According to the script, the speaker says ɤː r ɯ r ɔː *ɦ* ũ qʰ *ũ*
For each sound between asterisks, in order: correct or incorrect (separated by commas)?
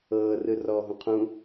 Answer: correct, correct